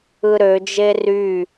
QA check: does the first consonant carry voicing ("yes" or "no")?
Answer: yes